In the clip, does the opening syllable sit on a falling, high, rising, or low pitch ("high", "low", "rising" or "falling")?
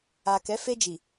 low